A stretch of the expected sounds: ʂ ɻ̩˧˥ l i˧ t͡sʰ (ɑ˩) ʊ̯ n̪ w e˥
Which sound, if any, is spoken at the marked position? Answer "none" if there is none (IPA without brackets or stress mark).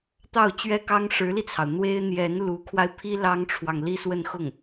ɑ˩